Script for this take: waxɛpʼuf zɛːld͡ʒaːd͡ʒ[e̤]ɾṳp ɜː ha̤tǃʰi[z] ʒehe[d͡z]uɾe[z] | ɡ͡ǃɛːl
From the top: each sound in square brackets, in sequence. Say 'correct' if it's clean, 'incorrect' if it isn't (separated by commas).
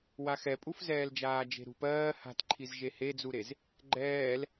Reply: correct, correct, correct, correct